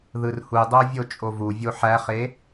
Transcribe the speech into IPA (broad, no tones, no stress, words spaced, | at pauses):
ðɯrhudˤo vʲot͡ʃʼovuvʲo ħæχe